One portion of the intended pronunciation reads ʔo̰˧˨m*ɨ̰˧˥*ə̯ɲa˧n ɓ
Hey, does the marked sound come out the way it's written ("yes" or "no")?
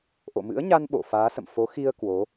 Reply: yes